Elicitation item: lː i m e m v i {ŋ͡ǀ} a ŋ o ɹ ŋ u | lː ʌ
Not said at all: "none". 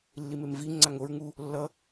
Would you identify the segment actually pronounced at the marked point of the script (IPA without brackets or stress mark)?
ŋ͡ǀ